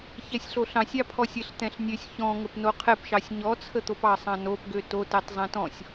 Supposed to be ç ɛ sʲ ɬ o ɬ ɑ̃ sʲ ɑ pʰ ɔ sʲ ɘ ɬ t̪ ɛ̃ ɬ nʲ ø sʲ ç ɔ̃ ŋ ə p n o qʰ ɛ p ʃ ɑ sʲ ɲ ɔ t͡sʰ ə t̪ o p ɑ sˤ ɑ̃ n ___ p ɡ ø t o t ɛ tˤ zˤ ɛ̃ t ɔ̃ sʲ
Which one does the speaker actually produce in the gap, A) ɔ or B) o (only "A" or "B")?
B